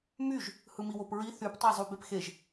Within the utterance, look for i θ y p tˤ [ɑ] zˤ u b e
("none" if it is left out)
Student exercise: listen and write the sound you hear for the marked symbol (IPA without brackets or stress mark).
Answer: ɑ